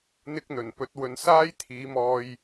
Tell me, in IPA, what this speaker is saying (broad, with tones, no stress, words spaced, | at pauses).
n̪ɪ˧k̚ n̪ɵ˨˩npɵ˨˥t̚wɵ˨˧n saː˥j t̪ʰiː˨˥mɔː˧j